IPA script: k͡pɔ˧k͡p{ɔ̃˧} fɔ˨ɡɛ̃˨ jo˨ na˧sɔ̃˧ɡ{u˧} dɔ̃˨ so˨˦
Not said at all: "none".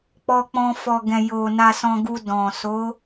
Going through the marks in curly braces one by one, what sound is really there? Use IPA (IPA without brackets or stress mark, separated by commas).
ɔ̃˧, u˧